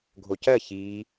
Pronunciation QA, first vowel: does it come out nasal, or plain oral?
oral